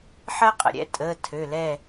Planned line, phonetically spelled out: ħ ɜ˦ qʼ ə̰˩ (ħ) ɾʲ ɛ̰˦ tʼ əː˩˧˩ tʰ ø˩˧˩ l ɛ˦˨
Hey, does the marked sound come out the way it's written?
no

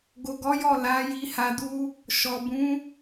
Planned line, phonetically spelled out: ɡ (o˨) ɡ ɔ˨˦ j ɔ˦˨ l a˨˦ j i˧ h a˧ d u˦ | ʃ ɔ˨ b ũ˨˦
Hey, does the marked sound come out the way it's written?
yes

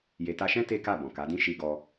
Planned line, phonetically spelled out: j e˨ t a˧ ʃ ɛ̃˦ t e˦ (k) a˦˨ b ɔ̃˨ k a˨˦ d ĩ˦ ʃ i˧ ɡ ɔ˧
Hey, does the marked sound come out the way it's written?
yes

